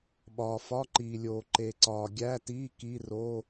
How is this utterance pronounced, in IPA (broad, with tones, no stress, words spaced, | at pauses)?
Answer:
ɓɒː˨fɒ˧˥˧ǃiː˨lʲoː˨ ǃe˨ǀɒː˨ɡʲæ˧˥˧tiː˧˥˧ ki˧˥˧ro˧˥˧